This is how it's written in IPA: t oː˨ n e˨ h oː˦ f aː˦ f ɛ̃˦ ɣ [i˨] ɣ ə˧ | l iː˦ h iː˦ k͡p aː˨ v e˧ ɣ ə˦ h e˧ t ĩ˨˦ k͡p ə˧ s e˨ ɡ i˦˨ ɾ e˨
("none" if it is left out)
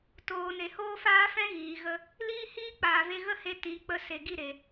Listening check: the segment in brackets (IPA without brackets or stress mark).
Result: iː˨